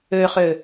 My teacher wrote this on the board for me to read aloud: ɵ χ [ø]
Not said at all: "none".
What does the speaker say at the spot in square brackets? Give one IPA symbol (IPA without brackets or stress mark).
ɵ